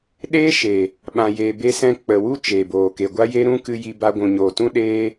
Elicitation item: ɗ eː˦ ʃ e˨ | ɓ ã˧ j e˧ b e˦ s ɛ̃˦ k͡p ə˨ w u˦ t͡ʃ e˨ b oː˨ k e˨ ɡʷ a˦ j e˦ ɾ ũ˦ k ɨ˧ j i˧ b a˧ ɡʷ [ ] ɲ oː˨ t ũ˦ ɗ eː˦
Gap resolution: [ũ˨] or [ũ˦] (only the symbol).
ũ˨